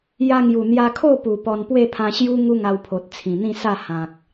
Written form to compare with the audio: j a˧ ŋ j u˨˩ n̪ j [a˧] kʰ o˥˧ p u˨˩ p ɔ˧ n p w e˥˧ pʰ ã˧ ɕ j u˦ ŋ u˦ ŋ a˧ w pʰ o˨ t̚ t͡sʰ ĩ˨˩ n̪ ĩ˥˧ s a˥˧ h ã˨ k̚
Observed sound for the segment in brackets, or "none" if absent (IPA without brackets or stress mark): a˧